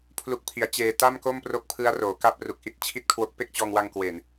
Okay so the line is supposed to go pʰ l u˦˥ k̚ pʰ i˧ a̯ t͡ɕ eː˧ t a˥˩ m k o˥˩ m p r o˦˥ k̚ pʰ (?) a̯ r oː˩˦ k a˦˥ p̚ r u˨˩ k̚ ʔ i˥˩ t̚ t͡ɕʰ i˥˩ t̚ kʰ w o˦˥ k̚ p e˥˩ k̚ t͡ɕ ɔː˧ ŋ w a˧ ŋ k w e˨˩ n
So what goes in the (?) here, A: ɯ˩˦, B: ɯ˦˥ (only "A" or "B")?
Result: B